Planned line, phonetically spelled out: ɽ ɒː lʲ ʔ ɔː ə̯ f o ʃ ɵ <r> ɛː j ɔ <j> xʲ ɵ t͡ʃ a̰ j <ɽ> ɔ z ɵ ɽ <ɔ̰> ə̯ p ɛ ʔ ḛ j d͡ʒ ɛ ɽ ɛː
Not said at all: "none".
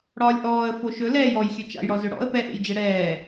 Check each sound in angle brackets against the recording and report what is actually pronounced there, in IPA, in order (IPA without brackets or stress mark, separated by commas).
l, j, ɽ, ɔ̰